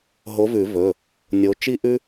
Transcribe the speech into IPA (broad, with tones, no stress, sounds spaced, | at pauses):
ɦ o˨˥ v ʉ˨˩˦ v ɵ˩˧˩ | nʲ o˨˥ t͡ʃ i˦ ʔ ʉ˦